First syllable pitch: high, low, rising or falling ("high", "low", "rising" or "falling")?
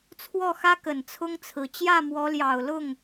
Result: falling